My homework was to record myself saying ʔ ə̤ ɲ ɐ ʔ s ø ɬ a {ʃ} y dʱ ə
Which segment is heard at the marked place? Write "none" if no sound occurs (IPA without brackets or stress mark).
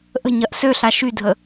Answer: ʃ